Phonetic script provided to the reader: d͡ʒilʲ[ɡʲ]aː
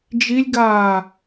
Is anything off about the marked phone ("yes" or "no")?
yes